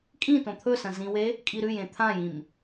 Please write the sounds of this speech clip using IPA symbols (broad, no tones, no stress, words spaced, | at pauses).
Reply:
kʼĩ tõt̪ʰɵsɐ̃ zĩwe | kʼiɾʉjẽ t̪ʰãjĩm